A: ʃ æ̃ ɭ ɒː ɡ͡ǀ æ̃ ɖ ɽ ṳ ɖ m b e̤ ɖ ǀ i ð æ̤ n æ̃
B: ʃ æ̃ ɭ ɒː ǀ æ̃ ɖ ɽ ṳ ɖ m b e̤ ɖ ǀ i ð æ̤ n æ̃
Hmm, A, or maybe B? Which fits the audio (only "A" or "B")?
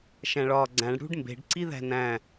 A